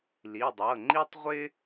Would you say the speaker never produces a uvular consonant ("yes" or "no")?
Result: no